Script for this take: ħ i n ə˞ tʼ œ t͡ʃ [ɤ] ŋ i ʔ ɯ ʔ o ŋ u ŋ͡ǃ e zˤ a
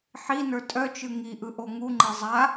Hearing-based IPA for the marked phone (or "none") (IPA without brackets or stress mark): ɯ